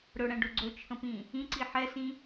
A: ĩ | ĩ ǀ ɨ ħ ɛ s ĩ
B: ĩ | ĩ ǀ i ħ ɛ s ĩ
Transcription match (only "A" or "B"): B